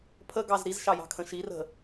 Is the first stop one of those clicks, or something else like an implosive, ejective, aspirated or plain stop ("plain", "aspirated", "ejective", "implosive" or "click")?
aspirated